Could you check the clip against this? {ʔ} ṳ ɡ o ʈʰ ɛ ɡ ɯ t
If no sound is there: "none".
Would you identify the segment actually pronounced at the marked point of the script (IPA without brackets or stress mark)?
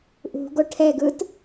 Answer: ʔ